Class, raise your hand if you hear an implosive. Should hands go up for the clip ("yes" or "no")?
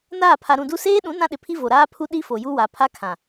yes